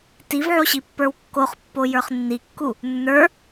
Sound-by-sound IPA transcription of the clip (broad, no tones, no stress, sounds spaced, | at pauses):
t i v ʕ o ɕ i pː ə˞ w kː o χ pː o j ə˞ χ nː i kː u | nː ə˞